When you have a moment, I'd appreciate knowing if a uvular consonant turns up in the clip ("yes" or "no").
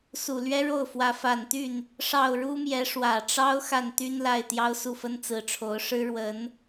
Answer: no